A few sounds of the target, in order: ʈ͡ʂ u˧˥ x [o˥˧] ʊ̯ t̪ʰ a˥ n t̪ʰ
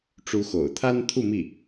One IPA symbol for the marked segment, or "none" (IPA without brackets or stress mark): o̰˨˩